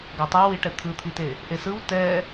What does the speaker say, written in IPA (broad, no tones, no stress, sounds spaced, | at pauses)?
ɡ a tˤ a w i ʈ ɛ t̪ʰ ɯ t̪ʰ i t e | ʔ e s ɯ w t ɛ